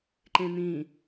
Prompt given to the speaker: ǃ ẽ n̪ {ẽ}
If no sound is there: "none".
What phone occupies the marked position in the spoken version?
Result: ĩ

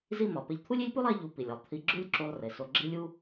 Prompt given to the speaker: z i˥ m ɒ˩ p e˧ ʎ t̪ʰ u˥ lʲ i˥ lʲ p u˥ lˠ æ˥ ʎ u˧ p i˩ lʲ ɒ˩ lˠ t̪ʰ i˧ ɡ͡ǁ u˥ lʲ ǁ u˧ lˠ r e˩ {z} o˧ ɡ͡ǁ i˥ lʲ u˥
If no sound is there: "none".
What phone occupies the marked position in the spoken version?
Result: s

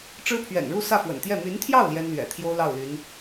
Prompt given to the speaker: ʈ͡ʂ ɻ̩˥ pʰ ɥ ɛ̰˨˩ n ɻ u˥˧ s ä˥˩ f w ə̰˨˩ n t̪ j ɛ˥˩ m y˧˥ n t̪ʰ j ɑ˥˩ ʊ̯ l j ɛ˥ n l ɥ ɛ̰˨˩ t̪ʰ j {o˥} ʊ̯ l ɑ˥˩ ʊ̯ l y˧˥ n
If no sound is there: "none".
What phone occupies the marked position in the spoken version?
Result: o˥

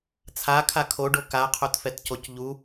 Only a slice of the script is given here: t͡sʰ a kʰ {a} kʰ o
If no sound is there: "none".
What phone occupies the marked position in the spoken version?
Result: a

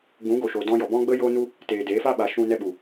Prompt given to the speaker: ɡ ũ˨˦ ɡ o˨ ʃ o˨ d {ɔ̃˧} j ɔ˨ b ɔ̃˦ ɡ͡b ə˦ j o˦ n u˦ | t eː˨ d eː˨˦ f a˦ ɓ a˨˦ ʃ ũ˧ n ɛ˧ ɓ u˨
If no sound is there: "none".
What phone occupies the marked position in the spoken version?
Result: ɔ̃˧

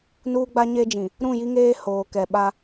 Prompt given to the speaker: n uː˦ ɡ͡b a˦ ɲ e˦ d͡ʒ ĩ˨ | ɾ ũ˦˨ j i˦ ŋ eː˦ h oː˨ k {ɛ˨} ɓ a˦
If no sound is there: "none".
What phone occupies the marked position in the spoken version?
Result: ɛ˨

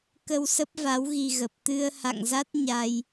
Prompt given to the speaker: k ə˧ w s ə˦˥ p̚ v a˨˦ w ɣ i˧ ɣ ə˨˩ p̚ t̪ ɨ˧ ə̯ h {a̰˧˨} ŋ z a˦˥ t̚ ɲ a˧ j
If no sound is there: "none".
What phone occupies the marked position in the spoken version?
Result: a̰˧˨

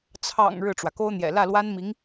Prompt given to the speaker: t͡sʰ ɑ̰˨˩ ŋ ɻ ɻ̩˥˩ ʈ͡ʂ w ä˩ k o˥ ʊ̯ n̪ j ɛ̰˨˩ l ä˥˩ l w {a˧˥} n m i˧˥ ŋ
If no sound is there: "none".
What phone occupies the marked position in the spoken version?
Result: a˥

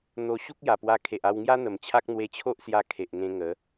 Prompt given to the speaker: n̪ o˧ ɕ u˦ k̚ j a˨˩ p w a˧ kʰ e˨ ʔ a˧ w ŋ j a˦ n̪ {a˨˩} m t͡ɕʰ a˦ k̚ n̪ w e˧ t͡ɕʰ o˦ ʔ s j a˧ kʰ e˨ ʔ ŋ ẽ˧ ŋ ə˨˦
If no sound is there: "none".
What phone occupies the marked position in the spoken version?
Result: ə˨˩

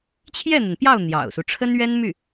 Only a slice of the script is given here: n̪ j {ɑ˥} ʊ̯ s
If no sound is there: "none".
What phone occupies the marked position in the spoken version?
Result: ɑ̰˨˩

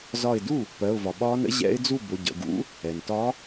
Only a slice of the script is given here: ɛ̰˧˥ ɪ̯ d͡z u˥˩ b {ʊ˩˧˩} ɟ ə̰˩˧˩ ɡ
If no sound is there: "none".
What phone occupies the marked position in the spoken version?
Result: ʊ˩˧˩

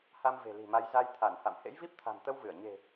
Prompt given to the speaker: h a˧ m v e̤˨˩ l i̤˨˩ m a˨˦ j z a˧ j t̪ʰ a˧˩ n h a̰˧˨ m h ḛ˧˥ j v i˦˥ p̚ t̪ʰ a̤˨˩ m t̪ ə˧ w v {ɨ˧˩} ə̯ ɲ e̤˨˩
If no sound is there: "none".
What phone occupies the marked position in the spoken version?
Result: ɨ˧˩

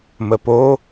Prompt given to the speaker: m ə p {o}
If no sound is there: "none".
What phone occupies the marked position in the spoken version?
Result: o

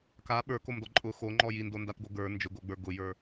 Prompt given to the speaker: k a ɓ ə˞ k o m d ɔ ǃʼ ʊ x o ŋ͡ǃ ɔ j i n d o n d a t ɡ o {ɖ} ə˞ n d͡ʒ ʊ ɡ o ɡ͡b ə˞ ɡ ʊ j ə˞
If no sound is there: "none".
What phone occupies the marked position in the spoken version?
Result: ɡ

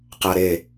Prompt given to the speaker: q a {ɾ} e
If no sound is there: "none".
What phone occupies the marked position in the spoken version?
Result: ɾ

